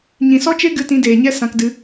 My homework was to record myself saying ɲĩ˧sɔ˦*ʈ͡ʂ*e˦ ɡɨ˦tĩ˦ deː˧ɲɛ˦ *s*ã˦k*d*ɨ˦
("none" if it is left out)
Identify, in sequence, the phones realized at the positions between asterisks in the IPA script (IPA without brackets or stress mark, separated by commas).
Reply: t͡ʃ, s, d